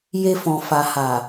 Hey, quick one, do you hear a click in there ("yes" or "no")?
no